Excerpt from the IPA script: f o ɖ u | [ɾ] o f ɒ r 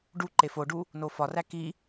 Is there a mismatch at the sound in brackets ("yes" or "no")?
yes